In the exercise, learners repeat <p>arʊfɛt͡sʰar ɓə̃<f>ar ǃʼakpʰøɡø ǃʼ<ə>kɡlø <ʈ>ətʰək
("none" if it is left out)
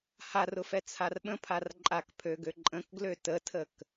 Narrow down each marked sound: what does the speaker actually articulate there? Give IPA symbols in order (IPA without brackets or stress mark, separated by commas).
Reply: h, pʰ, ə̃, t